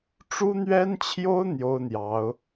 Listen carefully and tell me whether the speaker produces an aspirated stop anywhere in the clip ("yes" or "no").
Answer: yes